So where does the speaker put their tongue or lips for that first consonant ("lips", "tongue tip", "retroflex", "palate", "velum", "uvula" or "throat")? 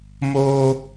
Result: lips